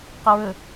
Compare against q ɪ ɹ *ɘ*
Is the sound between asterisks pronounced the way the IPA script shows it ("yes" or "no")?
yes